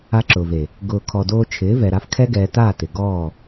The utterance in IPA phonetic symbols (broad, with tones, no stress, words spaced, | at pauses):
a˧ǁʊː˨ve˨ | ɡʊː˨kʰɔ˨ doː˧t͡ʃʰɪː˨˦ vɛ˨ɾa˧fkʰɛ˦ ɡɛː˧ ta˦˨ tɪ˨ɡɔː˦˨